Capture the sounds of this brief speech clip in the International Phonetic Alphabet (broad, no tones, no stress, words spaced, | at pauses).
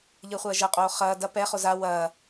ʎɘːχʷɐːʒɐqʼoː χɐː dɐ pɛχo za wɐː